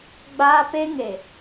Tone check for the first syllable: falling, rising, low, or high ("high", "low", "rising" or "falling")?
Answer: high